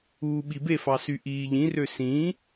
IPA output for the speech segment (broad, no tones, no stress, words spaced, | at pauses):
uːɓibefɑ syʔiːʎĩrø sĩ